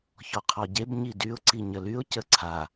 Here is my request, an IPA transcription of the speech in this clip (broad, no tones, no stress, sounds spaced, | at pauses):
ç ɔ qʰ ɔ ɟ e b ɲ i d y ʊ̯ ǀ i ɲ ə l y ʊ̯ c ə ǀʰ a